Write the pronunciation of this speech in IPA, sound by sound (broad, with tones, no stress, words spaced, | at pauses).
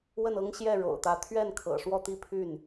wə˥˩nɤ˥ŋɕjɛ˥˩ ɻo̰˨˩ʊ̯t̪ä˧˥ t̪ʰɥɛ˥˩nkʰɤ̰˨˩ ʂwɔ˥˧t̪i˥˧pʰy˥˩n